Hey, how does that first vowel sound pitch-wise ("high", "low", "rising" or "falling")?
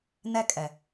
high